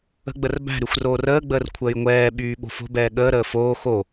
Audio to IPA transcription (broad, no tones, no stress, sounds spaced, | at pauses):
ə̤ ɡ͡b ə r b æ̤ ɾ y xʷ r oː r əː ɡ͡b əː r kʷʰ əː j ŋʷ ɛː ɓ yː ɓ o̤ f o̤ b ɛː ɠ əː ɾ əː f oː x o